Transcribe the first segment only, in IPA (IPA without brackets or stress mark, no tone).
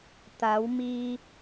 t̪